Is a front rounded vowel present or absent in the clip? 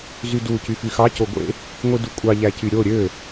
present